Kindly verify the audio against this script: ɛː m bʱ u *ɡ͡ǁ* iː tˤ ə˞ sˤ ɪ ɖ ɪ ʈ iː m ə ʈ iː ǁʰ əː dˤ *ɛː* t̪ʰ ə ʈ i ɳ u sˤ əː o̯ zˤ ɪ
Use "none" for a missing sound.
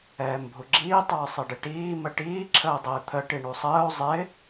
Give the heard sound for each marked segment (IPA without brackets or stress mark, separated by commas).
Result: ɡ͡ǁ, ɪː